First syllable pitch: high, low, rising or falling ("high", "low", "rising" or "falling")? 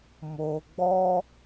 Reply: low